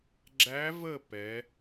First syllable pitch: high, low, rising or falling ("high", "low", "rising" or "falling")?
rising